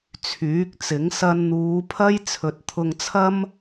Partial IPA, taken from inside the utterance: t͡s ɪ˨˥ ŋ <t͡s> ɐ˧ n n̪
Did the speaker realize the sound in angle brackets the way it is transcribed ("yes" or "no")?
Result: no